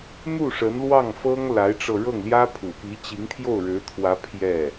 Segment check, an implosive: absent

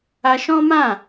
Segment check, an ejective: absent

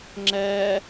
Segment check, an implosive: absent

